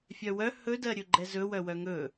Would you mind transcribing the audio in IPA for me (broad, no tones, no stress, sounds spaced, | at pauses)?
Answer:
fʲ œ w œ h ɵ d ɜ ɾʲ ɵ ɡ͡ǃ ɛ z ɵ w œ w œ ŋ ɵ